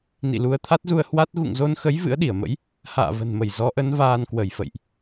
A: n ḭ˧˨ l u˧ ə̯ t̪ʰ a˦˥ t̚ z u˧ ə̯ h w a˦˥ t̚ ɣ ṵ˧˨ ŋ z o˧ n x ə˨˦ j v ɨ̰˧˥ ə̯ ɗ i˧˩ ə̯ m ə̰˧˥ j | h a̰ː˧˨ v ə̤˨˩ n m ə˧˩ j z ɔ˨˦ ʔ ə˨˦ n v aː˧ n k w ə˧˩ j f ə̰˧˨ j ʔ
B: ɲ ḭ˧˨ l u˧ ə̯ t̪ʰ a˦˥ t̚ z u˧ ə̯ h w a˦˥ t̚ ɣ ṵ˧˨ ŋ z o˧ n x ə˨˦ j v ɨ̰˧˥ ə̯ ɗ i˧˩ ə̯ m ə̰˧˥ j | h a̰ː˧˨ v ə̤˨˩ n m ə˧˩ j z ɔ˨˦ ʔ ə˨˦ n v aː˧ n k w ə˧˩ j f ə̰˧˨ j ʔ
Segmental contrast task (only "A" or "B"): A